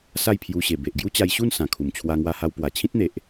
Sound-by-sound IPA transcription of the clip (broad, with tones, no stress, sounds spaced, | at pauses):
s a˥˧ j pʰ j u˧ ɕ e˨˩ b e˨ ʔ ɡ j u˦ t͡ɕ a˧ j ɕ u˥˧ n s ã˨˩ kʰ u˨˩ m t͡ɕʰ w a˧ ŋ w a˧ h a˧ w p w a˨˩ t͡ɕʰ ĩ˦ t̚ n̪ e˨ ʔ